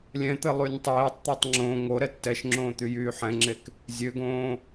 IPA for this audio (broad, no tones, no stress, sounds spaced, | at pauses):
lʲ ɛ̃ t̪ ɘ lˠ y nʲ tˤ eː tˤ t̪ ø tˤ ŋ͡ǁ õ ŋ o ɾ ɛ tː ɛ ʃ ŋ͡ǁ õː t̪ y j yː ħ ɛ̃ ŋ͡ǁ e k | zʲ ø ɡ õː